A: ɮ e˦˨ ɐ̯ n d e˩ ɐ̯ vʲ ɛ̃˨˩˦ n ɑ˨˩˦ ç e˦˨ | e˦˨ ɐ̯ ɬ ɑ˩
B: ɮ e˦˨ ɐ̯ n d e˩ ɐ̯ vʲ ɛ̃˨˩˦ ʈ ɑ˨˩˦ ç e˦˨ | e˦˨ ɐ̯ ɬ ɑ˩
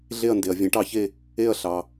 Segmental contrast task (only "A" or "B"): B